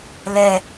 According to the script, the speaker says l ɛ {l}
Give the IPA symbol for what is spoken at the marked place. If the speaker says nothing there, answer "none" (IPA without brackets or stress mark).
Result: none